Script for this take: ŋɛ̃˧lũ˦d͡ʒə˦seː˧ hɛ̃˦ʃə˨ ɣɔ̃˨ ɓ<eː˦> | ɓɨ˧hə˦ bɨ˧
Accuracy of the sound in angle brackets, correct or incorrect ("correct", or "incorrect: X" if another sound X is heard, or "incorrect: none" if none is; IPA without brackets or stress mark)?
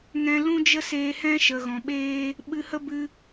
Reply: correct